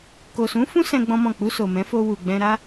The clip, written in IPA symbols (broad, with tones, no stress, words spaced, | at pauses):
ko˨sũ˨˦fũ˦ sɛ̃˦ɡ͡bɔ̃˦mɔ̃˦˨ k͡pu˧so˨mɛ̃˨˦fo˧ wu˨ɡ͡bɛ̃˧ɾa˦